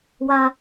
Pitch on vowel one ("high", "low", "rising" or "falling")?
low